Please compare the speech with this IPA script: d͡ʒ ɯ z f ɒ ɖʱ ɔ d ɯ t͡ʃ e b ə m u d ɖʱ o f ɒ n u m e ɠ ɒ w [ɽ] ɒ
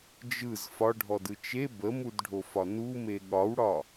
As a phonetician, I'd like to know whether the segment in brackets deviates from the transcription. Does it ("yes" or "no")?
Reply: no